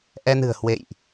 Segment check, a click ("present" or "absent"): absent